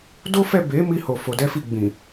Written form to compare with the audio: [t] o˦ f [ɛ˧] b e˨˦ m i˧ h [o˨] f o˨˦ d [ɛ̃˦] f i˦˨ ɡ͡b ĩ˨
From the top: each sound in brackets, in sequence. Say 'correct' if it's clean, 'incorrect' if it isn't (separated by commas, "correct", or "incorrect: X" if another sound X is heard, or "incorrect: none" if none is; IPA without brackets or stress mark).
incorrect: d, incorrect: ɛ˦˨, correct, incorrect: ɛ˦